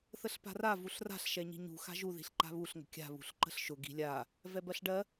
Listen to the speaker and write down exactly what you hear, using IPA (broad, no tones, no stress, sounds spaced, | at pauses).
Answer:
θ ə ɬ p a̤ r a v u ɬ r a̤ ɬ ʃ ɛ ɲ i̤ ɲ ṳ x a̤ ʒ u ð i̤ ɬ ǃ a̤ β u ɬ ŋ ə̤ kʲ a̤ β ṳ ɬ ǃ ə̤ ɬ ʃ ʊ ɡ i̤ lʲ a | v ɛ b ɜ ɬ ɖ ɜ